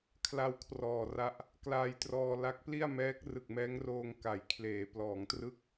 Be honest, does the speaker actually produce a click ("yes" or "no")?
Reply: no